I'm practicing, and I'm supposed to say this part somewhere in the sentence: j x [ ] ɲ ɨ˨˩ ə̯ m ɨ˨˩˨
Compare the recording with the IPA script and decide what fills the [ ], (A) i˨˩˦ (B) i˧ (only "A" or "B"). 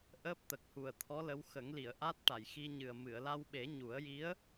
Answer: B